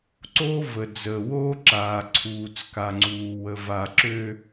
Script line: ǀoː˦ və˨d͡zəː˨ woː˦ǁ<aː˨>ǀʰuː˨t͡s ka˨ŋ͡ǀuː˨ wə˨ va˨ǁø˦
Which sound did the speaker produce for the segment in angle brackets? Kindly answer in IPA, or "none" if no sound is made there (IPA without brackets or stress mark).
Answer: aː˨